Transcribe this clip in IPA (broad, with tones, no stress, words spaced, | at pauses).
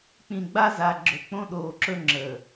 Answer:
k͡pĩ˨ɡ͡ba˦za˨ ɡ͡ǁɵ˨k͡põ˦ɗoː˨ǁɵ˦ ŋ͡ǁəː˨